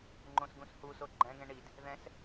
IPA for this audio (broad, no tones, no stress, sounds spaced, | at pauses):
ŋ͡ǃ õ s ɡ ũ s h u s o ɡ͡ǃ ɛ̃ ɡ ɛ̃ ɳ i d | ð ɛ̃ s